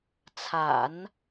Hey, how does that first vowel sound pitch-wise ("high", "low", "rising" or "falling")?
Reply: low